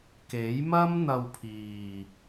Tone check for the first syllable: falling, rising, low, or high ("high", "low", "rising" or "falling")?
rising